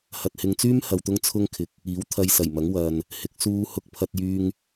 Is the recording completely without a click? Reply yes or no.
yes